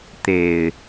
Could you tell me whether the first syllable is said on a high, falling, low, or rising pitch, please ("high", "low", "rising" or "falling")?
low